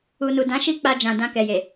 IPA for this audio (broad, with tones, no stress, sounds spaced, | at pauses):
u˨ n u˨ d ã˨˦ ʃ i˦ k͡p a˧ d͡ʒ ã˨ d ã˧ k ɛ˨ j e˨